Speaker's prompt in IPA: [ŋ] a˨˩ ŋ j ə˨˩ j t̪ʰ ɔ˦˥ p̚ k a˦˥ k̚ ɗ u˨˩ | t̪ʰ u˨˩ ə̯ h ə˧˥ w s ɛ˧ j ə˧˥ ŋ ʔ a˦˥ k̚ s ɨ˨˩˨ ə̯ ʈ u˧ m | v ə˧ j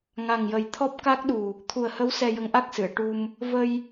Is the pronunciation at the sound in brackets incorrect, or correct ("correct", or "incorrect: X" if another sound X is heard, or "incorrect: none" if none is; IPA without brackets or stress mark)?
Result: correct